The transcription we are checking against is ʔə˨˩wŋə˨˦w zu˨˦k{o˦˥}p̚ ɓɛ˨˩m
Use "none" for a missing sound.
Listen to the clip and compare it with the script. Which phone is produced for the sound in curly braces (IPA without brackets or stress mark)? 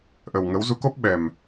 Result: o˦˥